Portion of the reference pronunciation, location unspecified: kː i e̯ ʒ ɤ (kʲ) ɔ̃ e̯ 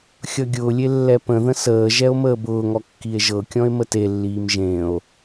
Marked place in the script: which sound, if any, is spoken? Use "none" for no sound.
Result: kʲ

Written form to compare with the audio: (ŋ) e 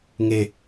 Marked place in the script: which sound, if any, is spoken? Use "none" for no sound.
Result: ŋ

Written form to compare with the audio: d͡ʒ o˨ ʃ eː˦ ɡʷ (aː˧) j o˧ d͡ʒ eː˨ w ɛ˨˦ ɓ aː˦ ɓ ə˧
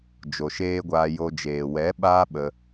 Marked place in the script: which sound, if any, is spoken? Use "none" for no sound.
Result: aː˧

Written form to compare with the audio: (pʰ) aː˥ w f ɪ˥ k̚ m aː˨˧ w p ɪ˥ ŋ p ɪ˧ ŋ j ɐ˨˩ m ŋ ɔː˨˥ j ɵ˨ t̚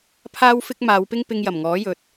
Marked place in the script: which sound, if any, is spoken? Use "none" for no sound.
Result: pʰ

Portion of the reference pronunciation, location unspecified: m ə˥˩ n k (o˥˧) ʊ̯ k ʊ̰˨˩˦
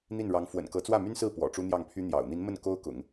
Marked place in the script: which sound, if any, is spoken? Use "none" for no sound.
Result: o˥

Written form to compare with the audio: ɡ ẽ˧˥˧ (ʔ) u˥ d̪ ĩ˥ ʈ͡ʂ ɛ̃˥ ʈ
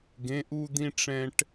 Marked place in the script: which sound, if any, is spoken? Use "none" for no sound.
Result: ʔ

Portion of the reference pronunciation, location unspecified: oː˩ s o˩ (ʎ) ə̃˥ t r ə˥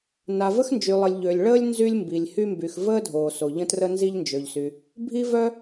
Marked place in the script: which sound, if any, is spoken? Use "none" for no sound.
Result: ʎ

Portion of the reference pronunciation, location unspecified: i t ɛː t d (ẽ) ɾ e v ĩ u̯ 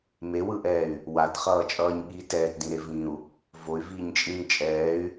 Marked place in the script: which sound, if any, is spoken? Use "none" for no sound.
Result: ĩ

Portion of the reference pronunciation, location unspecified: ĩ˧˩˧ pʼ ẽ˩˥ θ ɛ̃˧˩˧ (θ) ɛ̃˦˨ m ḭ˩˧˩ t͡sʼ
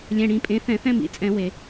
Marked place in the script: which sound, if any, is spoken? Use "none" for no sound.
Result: θ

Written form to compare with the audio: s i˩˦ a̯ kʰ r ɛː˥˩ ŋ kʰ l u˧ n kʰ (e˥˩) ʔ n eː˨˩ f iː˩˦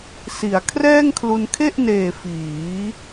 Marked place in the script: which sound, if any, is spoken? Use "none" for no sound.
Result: e˥˩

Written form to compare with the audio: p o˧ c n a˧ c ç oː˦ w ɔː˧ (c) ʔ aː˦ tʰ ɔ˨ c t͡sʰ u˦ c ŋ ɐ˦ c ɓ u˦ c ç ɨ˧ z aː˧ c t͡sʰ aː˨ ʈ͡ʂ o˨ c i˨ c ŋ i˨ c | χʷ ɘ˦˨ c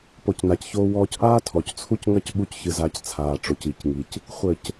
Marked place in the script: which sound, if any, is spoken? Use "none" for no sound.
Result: c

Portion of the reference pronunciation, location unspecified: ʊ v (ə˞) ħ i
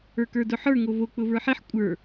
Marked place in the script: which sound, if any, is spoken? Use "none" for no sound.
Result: ə˞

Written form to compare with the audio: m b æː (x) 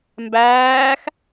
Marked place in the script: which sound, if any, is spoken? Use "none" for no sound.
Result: x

